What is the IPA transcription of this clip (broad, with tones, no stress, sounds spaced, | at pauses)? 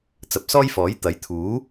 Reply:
t͡s ɐ˨ p̚ s ɔː˥ j f ɔː˨˥ j t̪ ɐ˨˥ j t̪ʰ uː˨˥